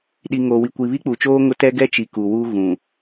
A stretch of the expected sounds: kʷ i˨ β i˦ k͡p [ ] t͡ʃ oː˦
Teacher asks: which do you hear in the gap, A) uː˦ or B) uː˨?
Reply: B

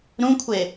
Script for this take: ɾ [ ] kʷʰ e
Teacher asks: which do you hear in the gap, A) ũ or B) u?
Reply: A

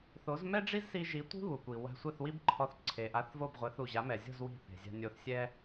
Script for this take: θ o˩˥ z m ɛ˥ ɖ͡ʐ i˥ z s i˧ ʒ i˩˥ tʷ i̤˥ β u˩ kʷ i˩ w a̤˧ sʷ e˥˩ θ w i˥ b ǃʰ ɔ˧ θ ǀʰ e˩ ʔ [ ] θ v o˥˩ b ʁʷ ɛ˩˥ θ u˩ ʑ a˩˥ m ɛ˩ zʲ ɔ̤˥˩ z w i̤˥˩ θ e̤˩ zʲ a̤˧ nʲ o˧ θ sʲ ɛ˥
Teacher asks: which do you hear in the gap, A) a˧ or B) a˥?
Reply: A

